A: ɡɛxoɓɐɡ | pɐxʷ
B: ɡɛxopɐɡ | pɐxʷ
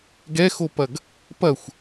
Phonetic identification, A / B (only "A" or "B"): B